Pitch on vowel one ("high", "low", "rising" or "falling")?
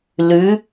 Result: rising